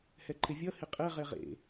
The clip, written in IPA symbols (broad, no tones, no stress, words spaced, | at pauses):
hɛǃɪvʲʌ hɪqʼɛ ʁɛʁḛ